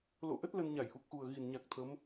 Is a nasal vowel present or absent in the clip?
absent